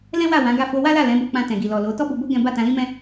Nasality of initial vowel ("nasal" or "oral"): nasal